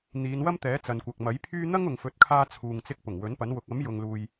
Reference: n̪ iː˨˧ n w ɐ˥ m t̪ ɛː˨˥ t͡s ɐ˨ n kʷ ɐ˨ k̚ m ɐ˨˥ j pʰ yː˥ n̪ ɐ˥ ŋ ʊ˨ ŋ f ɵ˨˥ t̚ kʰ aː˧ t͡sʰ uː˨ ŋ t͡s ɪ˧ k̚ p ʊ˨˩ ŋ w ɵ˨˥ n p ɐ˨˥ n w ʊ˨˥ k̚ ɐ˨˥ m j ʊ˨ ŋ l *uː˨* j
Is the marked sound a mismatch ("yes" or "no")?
no